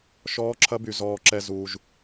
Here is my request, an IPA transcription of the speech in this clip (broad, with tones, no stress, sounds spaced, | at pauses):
ʃ ɔː˦ ǁʰ ɐ˦ b y˧ z ɔː˧ ǁ ɛ˧ z uː˧ ʒ